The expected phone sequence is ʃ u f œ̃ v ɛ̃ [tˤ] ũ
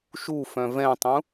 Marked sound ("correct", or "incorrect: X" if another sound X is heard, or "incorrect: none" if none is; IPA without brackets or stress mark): correct